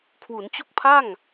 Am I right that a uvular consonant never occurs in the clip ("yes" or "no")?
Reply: yes